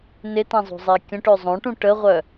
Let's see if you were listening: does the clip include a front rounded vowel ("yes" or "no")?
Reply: yes